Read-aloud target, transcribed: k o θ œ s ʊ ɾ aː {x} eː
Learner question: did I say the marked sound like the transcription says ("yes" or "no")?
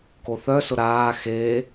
yes